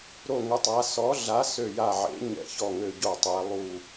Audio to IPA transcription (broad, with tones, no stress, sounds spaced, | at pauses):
ɾ o˦˨ ŋ ə˨˥ tˤ a˨˥ s ɔ˨˥ ɮ a˨˥ s ø˦˨ j a˦˨ ʕ ḛ˨˥ ɲ ɛ̰˦˨ ç ɔ˦˨ ŋ ø˦˨ ɟ o˦˨ tˤ ɛ˨˥ lˠ u˦˨